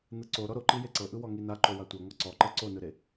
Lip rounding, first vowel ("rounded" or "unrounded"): unrounded